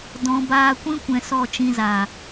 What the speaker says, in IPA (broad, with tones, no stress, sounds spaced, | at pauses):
d ɔ̃˨ b aː˧ kʷ ĩ˦ kʷ ɛ̃˨ s ɔ˦˨ t͡ʃ ĩ˧ z aː˨